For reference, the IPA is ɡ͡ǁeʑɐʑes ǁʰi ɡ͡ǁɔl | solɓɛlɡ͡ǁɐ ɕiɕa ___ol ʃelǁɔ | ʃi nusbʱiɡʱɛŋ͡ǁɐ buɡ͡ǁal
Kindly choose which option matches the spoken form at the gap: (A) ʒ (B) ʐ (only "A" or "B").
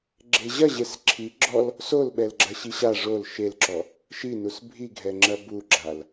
B